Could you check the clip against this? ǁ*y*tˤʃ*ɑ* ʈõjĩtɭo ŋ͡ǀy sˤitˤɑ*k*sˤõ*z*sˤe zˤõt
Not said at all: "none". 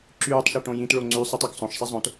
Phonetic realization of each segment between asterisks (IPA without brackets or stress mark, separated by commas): yː, ɑ, k, ʃ